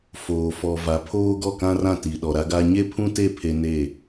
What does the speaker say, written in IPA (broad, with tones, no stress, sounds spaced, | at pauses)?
f oː˨ f ɔ˨ v a˨ pʰ oː˦ ɡ ɔ˦˨ k ã˦ r ã˦˨ t i˨ ɗ ɔ˨ ɾ a˦ ɡ a˦ ɲ e˦ pʰ ũ˦ t e˦˨ pʰ e˦ n e˦˨